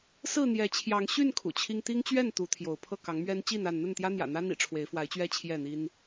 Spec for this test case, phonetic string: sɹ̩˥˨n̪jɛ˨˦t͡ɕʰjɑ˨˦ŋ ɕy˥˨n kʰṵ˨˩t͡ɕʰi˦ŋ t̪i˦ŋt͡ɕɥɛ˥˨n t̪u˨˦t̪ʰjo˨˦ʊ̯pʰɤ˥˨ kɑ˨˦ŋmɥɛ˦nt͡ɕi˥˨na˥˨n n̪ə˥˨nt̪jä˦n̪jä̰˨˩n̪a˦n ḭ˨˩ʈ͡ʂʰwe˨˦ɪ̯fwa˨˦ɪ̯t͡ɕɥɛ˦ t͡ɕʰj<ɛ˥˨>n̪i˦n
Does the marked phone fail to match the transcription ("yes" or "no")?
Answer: no